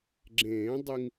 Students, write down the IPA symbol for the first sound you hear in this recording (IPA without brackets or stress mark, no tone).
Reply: ɡ͡ǁ